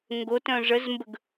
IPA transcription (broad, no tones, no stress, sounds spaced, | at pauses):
ŋ ɡ o t œ̃ ʐ ə z m b ə ɡ